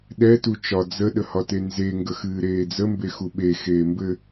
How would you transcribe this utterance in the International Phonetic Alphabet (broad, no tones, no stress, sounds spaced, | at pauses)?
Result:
ɗ ɛ t u t͡ʃ ɒ d͡z ə ɗ ə h ɒ t e n z e ŋ ɡ ə x ɨː ɾ eː d͡z ə m b e x u ɓ e x eː m b ɘ